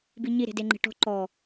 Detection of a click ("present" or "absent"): present